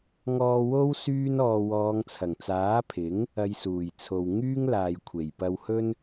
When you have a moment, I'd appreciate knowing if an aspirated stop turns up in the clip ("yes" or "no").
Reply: yes